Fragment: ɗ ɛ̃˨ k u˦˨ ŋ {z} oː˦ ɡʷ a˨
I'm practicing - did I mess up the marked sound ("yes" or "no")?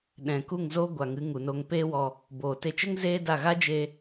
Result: no